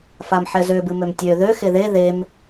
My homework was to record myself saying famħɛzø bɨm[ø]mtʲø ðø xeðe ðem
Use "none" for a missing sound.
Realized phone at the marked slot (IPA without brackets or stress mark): ø